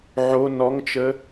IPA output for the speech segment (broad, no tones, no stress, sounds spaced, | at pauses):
ʕ o n ɔ ŋ t͡ʃ ə